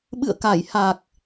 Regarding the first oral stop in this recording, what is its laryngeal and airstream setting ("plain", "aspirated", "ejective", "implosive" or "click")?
implosive